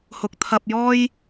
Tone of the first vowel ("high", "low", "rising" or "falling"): rising